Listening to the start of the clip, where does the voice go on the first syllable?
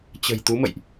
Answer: low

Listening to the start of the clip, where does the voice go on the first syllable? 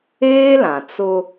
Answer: high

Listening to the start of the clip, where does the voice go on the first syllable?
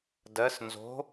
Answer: rising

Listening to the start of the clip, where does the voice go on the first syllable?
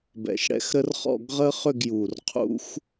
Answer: low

